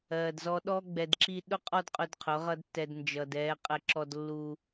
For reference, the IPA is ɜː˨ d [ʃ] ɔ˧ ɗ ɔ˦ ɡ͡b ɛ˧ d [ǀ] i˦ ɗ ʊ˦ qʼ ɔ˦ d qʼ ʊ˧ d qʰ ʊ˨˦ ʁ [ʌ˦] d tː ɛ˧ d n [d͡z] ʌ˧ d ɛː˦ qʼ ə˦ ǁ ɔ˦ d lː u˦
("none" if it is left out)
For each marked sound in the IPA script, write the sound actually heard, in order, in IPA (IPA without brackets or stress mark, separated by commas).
z, ǁ, ʌ˦, d͡ʒ